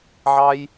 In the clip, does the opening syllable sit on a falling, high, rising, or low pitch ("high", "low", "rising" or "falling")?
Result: high